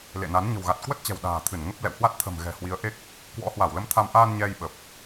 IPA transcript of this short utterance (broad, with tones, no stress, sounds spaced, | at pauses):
l ḛ˧˨ n a˨˦ n ɲ ə̤˨˩ w ɣ a˨˩ t̚ k w ə˦˥ t̚ t͡ɕ ɛ̤˨˩ w ɗ a̤ː˨˩ t̪ʰ ɨ˧˩ n ŋ ə˦˥ p̚ l ɛ̰˧˨ w h w a˦˥ t̚ t̪ʰ ə̤˨˩ m ɣ ɛ̤˨˩ h w i˨˦ ə̯ ʔ e˦˥ k̚ | k w ɔ̰˧˥ h w a˧˩ w l ə˨˦ m t̪ʰ a˧ m ʔ aː˧ n ɲ ɛ˧ j ɓ ə˨˩ p̚